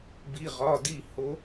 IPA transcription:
b i˩˧˩ ʁ ɒ˩˧˩ d i˧˩ h o˨˦

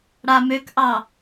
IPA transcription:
ɽ a m ø k ʔ ɑ

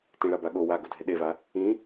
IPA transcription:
t ĩ ɭ a b a ɠ o w a ɡ ʊ dʱ e ɗ e v a | ĩ

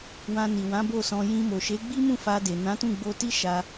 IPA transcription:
w ã˨ n i˨ w ã˨˦ b o˦˨ s ɔ̃˧ j ĩ˧ m o˨ ʃ e˨˦ ɡ͡b i˦ m ũ˦˨ f a˧ d e˨ n ã˨˦ t ũ˦˨ ɡ͡b o˧ t i˦ ʃ a˧

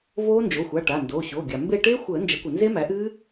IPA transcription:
v oː˦˥ n d͡ʒ o˩˧˩ xʷ a˩˧˩ ʈ a˩˧˩ n d oː˩˧˩ ɕ o˩˧˩ ɡʲ a˩ m b e˦˨ ʈ eː˦˥ xʷ əː˨˩˦ n d͡ʒ ə˩˥ kʷ ə˩ n z e˦˥ m æ˩˥ ʔ ɨː˦˥

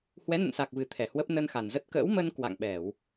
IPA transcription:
h w ɛ˨˦ n ə̰˧˨ n s a˨˩ k̚ v ɨ˨˩ t̪ʰ ɛ˧˩ h w ə˦˥ p̚ n ə˧ n x a˨˩ n z ə˦˥ t̚ k ə̰ː˧˥ w m ə˧ n k w a̰˧˨ ŋ ɓ ɛ˧˩˨ w

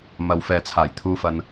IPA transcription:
m ɐ˨ w f ɛː˨ t͡sʰ aː˨˩ j t̪ʰ uː˨ f ɐ˨ n

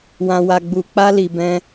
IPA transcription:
w ã˧ w a˧ ɡ͡b u˧ k͡p a˦ l i˧ b ɛ̃˦

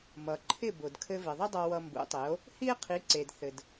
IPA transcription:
m ʌ˩ ǃʰ ɪ˥˩ b ʊ˩ d kʰ ɘ˧ v ɪ˩ ðˤ ə˥ dˤ ʌ˧ w ʌ˧ m b ṵ˩˥ tˤ ɪ˩˥ o̯ | h i˥ e̯ qʰ i˩˥ ǀ e˩ d θ ɘ˩ d

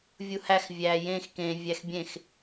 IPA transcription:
vʲ u h æ x vʲ æ j ẽ x k ẽ vʲ æ x bʲ ẽ x

